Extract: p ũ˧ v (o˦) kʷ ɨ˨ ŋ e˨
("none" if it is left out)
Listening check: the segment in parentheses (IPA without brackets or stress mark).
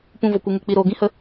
o˨